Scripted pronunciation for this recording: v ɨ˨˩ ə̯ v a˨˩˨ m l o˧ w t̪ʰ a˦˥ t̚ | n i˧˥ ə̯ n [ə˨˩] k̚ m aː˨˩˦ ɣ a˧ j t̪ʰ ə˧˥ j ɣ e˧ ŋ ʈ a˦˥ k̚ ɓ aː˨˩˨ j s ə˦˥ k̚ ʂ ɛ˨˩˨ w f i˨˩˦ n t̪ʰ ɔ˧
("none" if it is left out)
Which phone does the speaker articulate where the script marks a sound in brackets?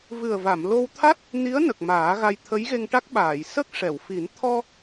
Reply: ə˨˩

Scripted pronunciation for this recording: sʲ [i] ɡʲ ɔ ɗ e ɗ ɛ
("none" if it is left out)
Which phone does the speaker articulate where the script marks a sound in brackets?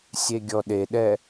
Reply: e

